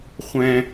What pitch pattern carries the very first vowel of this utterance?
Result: low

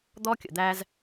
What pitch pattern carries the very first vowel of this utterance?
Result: high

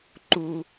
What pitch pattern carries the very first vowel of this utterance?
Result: low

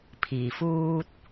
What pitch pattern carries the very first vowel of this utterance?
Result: low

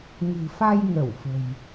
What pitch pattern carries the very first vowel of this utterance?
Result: low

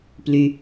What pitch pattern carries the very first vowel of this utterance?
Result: low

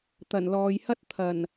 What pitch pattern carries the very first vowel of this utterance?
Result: low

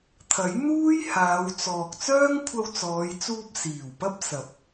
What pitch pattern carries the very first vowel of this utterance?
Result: rising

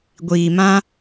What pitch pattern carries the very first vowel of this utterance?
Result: low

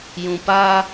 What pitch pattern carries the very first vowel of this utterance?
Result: low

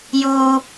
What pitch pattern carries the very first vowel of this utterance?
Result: high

